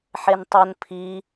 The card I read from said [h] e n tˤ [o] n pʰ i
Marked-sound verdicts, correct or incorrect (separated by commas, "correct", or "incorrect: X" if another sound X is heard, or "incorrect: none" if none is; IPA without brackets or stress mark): incorrect: ħ, correct